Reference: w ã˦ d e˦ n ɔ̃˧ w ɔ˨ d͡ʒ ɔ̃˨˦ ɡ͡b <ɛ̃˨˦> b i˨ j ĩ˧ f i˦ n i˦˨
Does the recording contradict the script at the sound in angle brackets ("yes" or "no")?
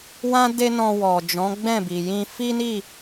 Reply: yes